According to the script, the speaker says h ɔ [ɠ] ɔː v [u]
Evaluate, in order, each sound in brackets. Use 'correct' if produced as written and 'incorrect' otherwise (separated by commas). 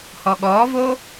correct, incorrect